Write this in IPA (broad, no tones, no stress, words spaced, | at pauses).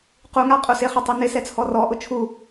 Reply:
quŋa qʼusɪχʊ tˤinɪsɛ t͡sʰɔrɔʔʊ t͡ʃʰu